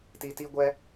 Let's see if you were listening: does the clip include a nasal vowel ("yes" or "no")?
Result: no